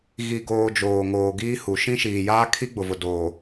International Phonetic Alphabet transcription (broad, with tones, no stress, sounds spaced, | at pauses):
ɣ i˨ ɡ oː˨ d͡ʒ oː˨ ŋ oː˨ ɡ iː˦ h u˨ ʃ ĩ˦ ʃ iː˨ j aː˦ kʰ i˦ ɡ͡b ʊ˨ v ʊ˨ d oː˨